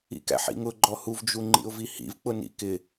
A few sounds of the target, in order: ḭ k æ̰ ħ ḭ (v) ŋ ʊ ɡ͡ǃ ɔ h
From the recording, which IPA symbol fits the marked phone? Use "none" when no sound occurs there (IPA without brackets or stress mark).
none